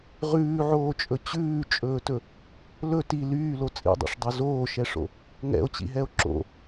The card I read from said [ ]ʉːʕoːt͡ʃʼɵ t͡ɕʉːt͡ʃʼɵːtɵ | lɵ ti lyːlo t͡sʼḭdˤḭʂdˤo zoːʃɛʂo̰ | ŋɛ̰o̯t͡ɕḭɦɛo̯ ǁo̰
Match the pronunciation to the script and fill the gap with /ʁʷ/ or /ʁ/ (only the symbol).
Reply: ʁ